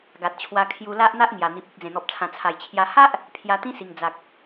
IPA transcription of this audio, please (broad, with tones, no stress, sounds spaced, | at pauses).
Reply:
ɡ a˨ t̚ t͡ɕʰ w a˧ kʰ j u˧ l a˦ ʔ n̪ a˦ ʔ ŋ j a˨˩ n̪ i˨ p̚ i˨ k̚ d͡z ẽ˨˩ n̪ ɔ˨ p̚ t͡sʰ ã˨˩ t͡sʰ a˨˩ j t͡ɕʰ j a˧ h a˦ ʔ | pʰ j a˧ t̪ ĩ˦ s i˨˩ ŋ d͡z a˨ k̚